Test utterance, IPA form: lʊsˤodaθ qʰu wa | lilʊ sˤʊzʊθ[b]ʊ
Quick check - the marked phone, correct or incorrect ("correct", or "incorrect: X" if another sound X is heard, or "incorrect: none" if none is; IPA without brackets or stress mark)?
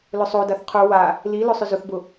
correct